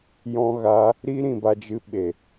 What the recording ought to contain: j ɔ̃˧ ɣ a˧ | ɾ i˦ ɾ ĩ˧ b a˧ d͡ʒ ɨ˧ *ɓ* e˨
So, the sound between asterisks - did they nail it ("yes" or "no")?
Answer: yes